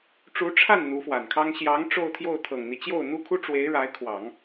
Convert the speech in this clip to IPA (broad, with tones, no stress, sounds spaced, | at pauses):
ʈ͡ʂ u˧˥ ʈ͡ʂʰ a˥˩ n n̪ u˧˥ f w a˨˩ n kʰ ɑ˥ ŋ ɕ j ɑ˧˥ ŋ ʈ͡ʂ o˥˧ ʊ̯ t̪ʰ j o˥˩ ʊ̯ t̪ʰ ɤ˨˩ ŋ n̪ i˦ t͡ɕ j o˥˩ ʊ̯ n̪ u˥ kʰ u˥ ʈ͡ʂ w e˧˥ ɪ̯ ɻ a˧˥ ɪ̯ kʰ w ɑ˨˩˦ ŋ